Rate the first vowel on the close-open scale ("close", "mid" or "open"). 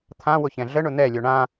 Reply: open